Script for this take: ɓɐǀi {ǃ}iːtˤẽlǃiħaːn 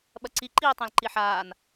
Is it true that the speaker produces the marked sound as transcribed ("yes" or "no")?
yes